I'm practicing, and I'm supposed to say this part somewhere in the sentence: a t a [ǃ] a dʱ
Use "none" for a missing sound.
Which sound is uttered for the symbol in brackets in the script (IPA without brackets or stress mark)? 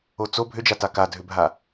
k